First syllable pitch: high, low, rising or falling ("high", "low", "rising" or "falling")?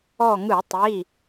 falling